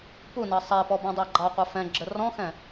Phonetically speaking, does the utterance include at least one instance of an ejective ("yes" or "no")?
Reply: no